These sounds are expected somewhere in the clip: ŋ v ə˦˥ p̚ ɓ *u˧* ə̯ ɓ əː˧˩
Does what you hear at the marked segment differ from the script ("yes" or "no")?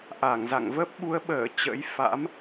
yes